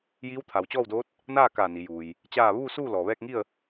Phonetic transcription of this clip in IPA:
jiː˧˥wt̪ʰa˩wt͡ɕɔː˥˨wdoː˧˥t̚ | naː˥˨kaː˧˩ ni˩˧juː˩j | t͡ɕaː˥˨ ʋuː˥˨suː˥˨ lɔː˩ʋɛː˥˨k̚ŋi˥˨ə̯

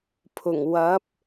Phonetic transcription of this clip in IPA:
pʰʊ˨˩ŋ wɐ˨˥p̚

